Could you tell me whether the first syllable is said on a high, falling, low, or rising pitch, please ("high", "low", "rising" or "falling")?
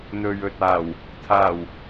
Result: low